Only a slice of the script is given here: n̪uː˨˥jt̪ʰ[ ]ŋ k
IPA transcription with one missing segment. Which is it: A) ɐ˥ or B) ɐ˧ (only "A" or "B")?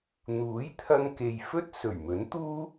B